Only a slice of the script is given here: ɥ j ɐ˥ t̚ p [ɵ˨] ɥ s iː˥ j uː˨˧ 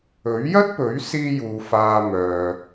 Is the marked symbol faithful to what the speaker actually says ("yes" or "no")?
no